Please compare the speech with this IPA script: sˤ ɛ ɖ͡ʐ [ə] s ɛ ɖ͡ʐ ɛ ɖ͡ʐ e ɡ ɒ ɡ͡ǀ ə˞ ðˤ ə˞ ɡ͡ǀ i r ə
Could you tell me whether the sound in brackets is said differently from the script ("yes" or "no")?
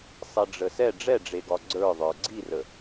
no